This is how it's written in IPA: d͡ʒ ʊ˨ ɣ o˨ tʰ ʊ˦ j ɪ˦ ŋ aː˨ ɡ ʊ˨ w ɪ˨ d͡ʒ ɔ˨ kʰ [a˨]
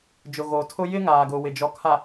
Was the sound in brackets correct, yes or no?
yes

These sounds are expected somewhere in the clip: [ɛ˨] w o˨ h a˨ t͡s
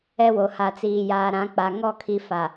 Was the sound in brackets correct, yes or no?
no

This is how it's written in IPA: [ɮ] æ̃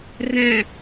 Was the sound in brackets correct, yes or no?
no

